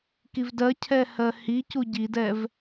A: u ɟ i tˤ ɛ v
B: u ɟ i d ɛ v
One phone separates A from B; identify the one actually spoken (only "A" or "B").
B